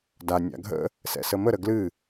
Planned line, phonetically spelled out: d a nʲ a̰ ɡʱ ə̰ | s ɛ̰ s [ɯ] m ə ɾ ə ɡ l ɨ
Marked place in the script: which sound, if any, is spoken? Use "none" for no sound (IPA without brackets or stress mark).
ə